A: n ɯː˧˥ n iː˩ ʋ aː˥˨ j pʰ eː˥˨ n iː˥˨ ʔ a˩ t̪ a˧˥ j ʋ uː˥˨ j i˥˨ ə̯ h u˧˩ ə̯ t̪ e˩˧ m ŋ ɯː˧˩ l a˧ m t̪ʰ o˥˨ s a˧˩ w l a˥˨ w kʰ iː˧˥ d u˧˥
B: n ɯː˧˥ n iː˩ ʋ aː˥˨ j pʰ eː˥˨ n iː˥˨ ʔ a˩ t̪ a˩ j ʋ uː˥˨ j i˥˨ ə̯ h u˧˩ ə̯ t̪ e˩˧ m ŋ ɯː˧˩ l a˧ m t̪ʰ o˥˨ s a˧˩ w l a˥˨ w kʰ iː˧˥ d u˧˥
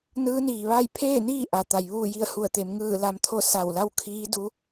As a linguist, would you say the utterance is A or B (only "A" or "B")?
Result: B